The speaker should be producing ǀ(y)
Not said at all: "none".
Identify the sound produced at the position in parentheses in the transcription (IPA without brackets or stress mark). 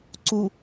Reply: u